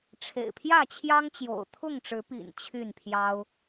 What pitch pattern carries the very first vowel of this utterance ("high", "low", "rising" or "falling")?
low